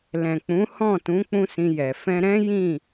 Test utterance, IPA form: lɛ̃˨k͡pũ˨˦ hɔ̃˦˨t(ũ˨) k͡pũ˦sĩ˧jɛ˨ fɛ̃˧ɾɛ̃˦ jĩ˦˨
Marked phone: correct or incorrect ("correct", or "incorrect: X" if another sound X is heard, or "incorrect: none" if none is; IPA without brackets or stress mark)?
incorrect: ũ˨˦